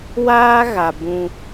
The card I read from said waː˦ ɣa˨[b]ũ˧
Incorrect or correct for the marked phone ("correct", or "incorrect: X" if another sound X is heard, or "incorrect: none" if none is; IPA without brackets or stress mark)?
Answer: correct